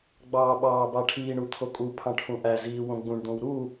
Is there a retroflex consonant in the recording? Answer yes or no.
yes